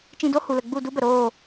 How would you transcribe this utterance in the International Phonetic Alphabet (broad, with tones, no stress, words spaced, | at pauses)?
t͡ʃĩ˧do˦hu˨lə˨ ɡ͡bu˦˨ du˦bə˨ɾoː˦˨